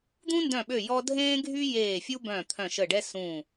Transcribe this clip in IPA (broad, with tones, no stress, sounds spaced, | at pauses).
d̪ ũ˥ n d œ̃˦˨ ɓ ø˦˨ j ɔ˥ dʱ ẽː˥ ɡʱ y˥ j eː˦˨ fʲ u˥ b œ̃˦˨ t̪ʰ œ̃˦˨ ʃ ə˦˨ ɖ ɛ˥ s ũ˦˨